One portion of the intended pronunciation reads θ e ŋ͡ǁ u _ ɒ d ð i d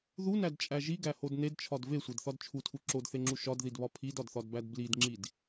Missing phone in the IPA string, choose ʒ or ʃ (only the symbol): ʃ